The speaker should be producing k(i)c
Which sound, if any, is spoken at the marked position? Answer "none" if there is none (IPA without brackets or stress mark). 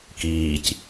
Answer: iː